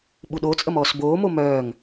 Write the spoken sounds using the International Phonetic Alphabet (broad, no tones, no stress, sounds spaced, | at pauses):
ɓ u ɗ o t͡sʼ ə m ɔː s b oː m o m œː ŋ